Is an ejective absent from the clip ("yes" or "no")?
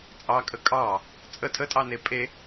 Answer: no